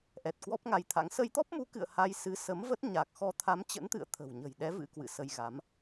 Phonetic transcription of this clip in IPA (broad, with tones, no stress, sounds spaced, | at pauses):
ʔ ɛ˨˩ t̚ k w ɔ˦˥ p̚ ŋ a˧ j t̪ʰ a̰˧˥ ŋ s ə˧ j t̪ ɔ˦˥ p̚ m u˨˦ k ɨ̰˧˨ ə̯ h a˧ j s ɨ˨˦ s ə˨˦ m v ə˦˥ t̚ ɲ a˨˩ k̚ x ɔ˧ t̪ʰ a˨˦ m t͡ɕ ə̰˧˥ n t̪ ɨ̰˧˨ ə̯ t̪ʰ ə̤˨˩ w ɲ ə̤˨˩ j ɗ ɛ˨˦ v ɨ̰˧˥ k w ɨ̰˧˨ s ə˧ j ɣ a˨˦ m